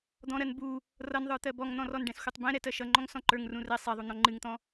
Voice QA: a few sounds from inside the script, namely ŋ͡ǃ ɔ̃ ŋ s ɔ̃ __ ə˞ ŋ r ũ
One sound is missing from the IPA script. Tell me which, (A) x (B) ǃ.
B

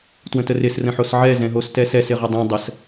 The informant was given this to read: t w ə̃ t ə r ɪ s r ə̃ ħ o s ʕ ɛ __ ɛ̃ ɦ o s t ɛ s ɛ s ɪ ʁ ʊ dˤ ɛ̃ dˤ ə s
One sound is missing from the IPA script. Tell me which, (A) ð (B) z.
B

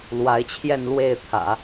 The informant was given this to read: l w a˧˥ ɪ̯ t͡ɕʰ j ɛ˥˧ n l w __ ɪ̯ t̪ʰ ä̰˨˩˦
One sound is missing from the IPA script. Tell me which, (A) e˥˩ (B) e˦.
A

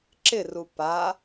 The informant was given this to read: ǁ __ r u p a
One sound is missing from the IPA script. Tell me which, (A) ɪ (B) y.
A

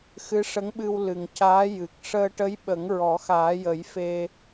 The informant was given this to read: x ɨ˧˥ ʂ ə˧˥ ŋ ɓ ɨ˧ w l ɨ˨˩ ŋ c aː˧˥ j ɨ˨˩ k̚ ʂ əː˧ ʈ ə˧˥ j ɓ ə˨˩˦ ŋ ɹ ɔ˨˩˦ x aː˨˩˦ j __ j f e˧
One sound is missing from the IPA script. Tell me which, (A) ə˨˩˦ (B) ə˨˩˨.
A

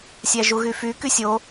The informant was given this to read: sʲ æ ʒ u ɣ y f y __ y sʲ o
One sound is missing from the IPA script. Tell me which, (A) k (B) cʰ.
A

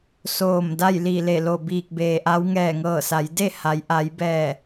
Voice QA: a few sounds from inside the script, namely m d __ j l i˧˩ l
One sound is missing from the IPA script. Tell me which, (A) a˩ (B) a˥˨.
B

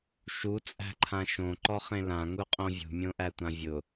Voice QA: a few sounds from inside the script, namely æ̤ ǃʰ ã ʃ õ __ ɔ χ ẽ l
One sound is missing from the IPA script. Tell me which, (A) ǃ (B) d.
A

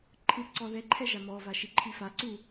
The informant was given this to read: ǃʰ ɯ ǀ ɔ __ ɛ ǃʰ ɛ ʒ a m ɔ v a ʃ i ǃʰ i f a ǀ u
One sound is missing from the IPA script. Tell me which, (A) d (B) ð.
B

